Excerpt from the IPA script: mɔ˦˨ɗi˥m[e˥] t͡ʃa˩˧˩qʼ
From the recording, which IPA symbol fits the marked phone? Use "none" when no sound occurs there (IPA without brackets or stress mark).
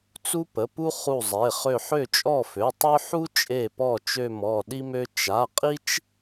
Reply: ø˥